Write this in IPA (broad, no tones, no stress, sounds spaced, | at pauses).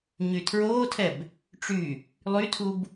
ɲ y tʰ ɹ oː tʰ ɛ b | ʈ͡ʂ y | lˠ y tʰ u b